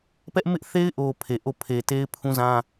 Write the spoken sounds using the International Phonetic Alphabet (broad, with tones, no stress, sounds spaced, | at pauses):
p ɛ˦ ʔ m ɪ˦ ʔ θ e˦ ɪ̯ ʔ o˨ pʰ e˨ ʔ o˦˨ pʰ e˨ t e˦ ɪ̯ pʰ ũ˦ z ã˦